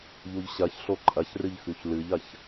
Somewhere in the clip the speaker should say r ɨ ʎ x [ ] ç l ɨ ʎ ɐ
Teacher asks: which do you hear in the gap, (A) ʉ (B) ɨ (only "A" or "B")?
A